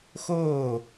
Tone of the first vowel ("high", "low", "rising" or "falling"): falling